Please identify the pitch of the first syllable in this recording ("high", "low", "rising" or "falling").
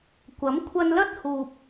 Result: rising